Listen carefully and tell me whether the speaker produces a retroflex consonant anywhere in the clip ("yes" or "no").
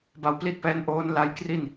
no